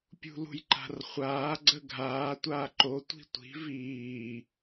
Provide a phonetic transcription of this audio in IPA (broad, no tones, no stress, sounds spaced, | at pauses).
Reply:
pʲ ṳ l ṳ j ǃ a̤ r χʷ aː ɡ͡ǀ ə ɡʱ aː tʷ aː ǃ o tʷ i̤ tʷ i̤ v iː